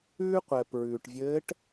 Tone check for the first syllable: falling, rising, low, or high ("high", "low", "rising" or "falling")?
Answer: high